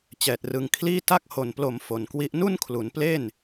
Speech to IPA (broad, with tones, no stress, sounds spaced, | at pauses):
t͡ɕ ɛː˨˩ t̚ r ɯ˧ ŋ kʰ l iː˥˩ t a˥˩ k̚ h o˨˩ n p l o˨˩ m f o˨˩ n k w i˦˥ ʔ n u˥˩ n kʰ l u˩˦ n p l e˥˩ n